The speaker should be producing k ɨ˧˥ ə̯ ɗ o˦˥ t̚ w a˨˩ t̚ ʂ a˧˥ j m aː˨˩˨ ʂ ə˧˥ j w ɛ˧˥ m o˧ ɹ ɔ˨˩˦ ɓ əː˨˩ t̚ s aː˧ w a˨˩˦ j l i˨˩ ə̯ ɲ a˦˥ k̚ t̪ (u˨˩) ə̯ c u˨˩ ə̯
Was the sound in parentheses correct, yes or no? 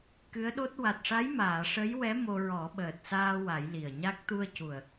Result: no